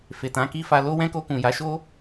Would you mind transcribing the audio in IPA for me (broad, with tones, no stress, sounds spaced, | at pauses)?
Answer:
f e˨ t ã˨˦ k i˦ f a˧ l o˦ w ɛ̃˦ k o˧ k ũ˨ j a˨˦ ʃ o˦